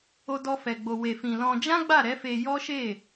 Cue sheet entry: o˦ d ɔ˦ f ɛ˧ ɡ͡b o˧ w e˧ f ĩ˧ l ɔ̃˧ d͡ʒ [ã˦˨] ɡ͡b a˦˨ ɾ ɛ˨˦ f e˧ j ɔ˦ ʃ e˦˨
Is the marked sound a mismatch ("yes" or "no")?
yes